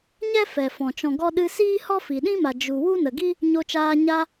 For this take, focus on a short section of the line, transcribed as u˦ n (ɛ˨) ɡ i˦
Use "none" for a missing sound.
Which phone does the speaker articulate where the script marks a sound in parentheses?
ə˨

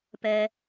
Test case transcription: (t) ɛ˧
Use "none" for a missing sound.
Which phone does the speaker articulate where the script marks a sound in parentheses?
p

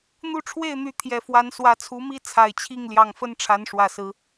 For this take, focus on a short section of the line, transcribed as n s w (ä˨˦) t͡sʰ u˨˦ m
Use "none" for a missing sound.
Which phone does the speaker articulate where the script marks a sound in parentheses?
ä˨˦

